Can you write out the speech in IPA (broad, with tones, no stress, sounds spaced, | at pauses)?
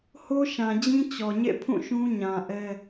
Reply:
h o˦ ʃ ã˨ d͡ʑ ĩ˦ t͡ɕ ɔ˨ ɲ ḛ˦˨ pʰ ũ˦˨ ʃ ũ˦ ɲ ã˨ ʔ ɛ˦